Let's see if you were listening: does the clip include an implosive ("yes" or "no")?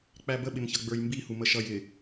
yes